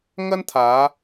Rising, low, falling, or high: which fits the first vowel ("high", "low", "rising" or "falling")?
high